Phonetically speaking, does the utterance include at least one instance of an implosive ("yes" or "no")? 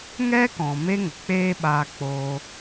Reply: yes